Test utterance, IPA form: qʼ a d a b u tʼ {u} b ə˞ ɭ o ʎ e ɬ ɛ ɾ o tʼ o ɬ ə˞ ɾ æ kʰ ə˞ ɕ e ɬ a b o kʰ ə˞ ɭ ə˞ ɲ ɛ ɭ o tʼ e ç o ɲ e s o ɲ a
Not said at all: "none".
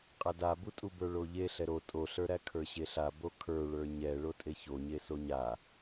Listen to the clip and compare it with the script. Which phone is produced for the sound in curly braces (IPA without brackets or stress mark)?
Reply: u